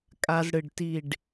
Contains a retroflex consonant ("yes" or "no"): yes